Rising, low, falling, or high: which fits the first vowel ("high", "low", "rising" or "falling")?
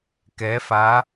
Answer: rising